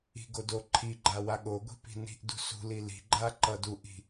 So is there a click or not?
yes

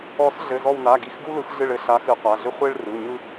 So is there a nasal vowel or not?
no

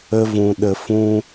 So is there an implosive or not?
yes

